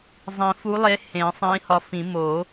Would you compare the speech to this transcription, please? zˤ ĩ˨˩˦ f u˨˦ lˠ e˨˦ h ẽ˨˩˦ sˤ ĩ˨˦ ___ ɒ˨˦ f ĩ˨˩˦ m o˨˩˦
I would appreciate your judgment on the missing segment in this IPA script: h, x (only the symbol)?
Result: h